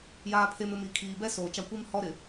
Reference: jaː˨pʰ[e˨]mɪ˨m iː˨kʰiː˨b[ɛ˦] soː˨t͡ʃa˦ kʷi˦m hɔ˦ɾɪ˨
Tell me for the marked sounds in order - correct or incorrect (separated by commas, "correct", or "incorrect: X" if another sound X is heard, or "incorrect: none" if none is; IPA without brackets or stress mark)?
correct, correct